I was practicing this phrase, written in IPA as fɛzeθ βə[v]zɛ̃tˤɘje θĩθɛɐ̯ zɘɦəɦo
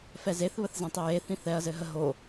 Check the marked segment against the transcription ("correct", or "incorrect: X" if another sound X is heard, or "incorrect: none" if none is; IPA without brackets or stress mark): incorrect: θ